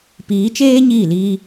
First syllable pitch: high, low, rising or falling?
rising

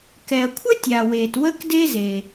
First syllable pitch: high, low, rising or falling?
low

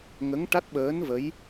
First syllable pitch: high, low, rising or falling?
rising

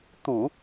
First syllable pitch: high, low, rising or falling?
low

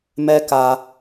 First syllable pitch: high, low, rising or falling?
high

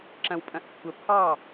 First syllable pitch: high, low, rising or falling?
low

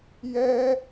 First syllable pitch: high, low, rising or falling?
high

